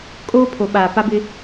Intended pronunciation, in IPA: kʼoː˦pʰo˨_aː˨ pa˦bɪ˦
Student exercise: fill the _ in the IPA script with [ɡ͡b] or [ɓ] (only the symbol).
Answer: ɓ